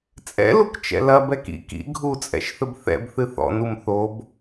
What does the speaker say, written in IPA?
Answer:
t͡sʼ ɛ̰ l u k t͡ʃ ɛ̰ l ɐ b ɛ k ḭ k ḭ ɡʱ u t͡sʼ ɛ̰ ʃ θ ɘ b θ ɛ̰ b θ ɨ θ ɔ̰ n u m θ o b

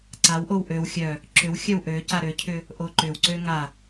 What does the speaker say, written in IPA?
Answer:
ǀ a w ʔ o w ʔ ø w xʲ œ | ǁ ʏ w xʲ œ w ʔ ø c a ɾ ø cʰ ʏ | ʔ o ǃ ʏ w ǀ ø ŋ a

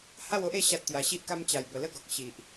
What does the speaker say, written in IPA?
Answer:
h a˥˧ w o˦ ʔ e˥˧ ɕ a˦ t̚ t̪ j a˧ ɕ i˦ ʔ k a˦ m t͡ɕ a˨˩ j b ə˨˩ l ə˦ ɡ ɔ˨ k̚ ɕ i˨ ʔ

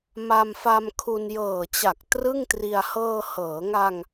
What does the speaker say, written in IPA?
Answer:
m a˧ m f a˧ m kʰ u˧ n j ɤː˨˩ t͡ɕ a˨˩ k̚ t r ɯ˥˩ ŋ t r i˧ a̯ h ɤː˧ h ɤː˩˦ ŋ a˧ ŋ

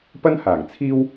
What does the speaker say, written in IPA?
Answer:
p ɐ˥ n h aː˨˩ ŋ t͡sʰ iː˥ w

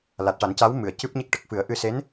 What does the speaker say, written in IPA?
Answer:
l a˨˩ t̚ ʈ a˨˩˦ n c a˧˥ w m ɨ˨˩˨ ə̯ c ɨ˦˥ p̚ ɲ e˦˥ k̚ ʈ ə˨˩ k̚ f ɨ˨˩˦ ə̯ ʔ ɨ˧ s e˧˥ n

